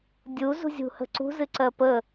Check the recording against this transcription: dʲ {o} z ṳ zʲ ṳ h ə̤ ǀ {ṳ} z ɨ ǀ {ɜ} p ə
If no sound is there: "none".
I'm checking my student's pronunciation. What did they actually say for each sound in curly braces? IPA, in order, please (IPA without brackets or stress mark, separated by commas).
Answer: u, ṳ, ɜ